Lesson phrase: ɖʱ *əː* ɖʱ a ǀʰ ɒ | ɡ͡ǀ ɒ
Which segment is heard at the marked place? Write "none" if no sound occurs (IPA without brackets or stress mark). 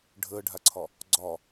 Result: əː